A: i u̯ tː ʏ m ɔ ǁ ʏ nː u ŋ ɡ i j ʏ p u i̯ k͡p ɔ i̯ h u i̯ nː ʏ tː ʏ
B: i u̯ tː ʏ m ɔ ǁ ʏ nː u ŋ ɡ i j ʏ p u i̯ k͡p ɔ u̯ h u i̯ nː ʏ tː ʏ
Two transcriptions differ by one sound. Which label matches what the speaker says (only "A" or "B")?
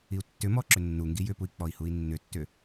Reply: A